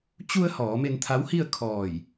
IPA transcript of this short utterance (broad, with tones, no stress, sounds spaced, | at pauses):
t͡ɕ u˧ ə̯ h ɔː˩˧ m e˧ n t̪ʰ a˧˥ w h i˥˨ ə̯ kʰ ɔː˧˩ j